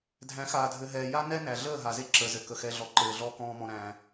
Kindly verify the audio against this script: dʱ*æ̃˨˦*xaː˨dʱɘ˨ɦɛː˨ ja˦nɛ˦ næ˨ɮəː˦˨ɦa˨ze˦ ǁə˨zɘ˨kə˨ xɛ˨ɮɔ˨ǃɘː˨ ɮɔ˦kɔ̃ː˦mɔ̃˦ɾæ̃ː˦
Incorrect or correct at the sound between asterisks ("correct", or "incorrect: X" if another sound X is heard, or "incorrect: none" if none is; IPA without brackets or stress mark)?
correct